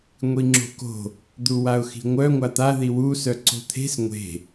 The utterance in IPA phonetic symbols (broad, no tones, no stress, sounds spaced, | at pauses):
ŋʷ i ŋ͡ǁ o̤ k o̤ | d̪ u w a ʊ̯ x i̤ ŋʷ œ ŋʷ a t̪ a ð i w u s œ ǀ o̤ t̪ʰ e̤ s ŋʷ e̤